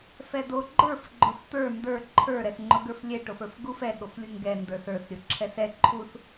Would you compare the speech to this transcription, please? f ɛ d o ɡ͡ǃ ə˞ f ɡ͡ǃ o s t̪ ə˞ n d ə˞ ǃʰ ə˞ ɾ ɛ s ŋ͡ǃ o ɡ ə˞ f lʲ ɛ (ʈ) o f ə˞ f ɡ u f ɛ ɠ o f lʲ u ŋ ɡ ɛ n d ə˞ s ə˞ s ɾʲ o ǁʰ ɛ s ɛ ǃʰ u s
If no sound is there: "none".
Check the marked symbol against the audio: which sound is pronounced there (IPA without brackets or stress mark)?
ʈ